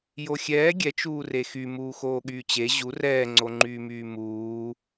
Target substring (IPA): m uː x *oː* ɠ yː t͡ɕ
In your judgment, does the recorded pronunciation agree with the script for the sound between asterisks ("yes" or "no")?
yes